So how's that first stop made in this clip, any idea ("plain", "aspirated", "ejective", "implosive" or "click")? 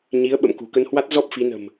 implosive